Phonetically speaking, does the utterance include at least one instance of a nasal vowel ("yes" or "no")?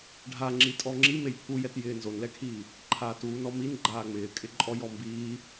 no